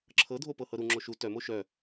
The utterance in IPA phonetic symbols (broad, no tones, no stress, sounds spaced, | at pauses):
ǁʰ ɤ dʱ o p ɤ h ɤ ɾ u ŋ͡ǁ o ʃ u t œ m o ʃ œ